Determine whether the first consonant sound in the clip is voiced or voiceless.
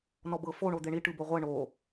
voiced